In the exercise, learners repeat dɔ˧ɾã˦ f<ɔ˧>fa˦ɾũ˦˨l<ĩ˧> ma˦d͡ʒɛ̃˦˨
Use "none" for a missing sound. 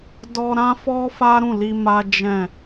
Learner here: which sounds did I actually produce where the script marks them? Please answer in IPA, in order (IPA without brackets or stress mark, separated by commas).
ɔ˦, i˧